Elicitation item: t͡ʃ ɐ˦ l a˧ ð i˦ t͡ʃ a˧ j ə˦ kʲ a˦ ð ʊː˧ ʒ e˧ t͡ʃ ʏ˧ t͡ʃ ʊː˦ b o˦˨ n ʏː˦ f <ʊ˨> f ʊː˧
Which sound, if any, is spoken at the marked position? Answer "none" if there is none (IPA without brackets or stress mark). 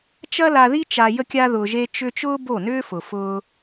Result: ʊ˨